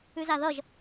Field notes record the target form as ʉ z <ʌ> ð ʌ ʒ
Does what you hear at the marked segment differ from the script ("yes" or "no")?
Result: yes